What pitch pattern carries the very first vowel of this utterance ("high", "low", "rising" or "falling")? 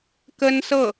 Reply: high